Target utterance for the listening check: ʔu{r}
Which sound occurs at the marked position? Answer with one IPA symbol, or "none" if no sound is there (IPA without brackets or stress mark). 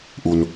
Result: n